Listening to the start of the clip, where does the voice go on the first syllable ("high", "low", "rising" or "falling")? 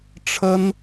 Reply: high